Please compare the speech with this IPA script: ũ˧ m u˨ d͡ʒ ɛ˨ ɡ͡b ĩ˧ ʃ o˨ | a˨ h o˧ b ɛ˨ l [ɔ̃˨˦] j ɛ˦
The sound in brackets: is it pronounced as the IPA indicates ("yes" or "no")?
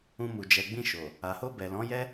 yes